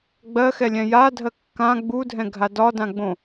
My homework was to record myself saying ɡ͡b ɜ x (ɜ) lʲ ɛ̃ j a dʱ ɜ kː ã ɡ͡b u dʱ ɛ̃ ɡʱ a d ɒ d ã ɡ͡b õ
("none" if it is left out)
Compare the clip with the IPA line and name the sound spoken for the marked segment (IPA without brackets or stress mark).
ɛ